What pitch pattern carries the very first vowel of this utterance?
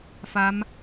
rising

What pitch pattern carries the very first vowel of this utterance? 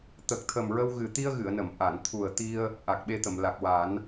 low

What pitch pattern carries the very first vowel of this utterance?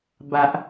low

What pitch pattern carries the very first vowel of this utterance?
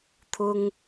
high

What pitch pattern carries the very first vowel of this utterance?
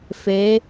rising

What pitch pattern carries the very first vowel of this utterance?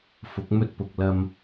rising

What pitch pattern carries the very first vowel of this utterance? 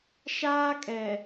high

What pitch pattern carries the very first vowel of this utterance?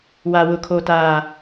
low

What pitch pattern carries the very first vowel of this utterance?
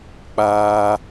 high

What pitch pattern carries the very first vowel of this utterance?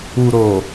low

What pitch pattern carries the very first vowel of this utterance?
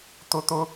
high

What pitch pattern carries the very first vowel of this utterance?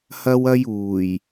high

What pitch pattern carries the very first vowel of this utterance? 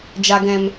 low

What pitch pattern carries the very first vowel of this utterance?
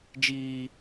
high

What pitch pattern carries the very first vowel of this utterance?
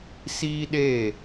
high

